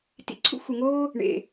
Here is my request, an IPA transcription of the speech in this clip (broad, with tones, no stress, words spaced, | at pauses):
tḭ˩ǀʰṵ˥ xʷe˩ŋoː˥ | ɳḛ˩